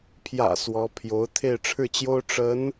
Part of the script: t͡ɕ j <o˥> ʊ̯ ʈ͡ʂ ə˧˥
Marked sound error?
no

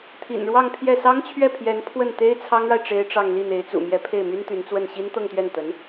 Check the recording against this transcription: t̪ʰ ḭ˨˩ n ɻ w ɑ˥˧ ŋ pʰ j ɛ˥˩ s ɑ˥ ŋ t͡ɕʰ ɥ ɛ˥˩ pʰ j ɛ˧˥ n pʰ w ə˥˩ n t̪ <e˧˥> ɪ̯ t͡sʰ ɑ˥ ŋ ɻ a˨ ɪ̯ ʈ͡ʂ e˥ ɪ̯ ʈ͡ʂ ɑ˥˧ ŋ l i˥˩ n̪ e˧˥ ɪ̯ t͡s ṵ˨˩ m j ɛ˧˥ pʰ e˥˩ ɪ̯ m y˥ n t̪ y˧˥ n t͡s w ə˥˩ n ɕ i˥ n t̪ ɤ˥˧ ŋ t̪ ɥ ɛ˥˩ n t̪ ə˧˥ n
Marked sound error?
yes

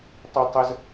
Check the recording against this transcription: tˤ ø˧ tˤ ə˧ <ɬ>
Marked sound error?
yes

